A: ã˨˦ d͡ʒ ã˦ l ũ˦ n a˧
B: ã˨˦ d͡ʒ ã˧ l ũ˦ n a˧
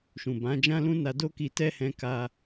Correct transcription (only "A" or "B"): A